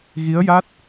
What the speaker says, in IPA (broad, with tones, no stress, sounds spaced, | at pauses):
ɣ i˧˥ ə̯ j a˦˥ t̚